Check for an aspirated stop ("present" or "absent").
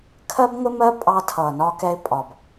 present